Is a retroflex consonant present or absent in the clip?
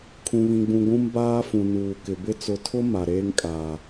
absent